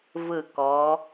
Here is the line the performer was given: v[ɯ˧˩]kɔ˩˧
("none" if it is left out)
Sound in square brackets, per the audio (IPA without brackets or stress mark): ɯ˧˩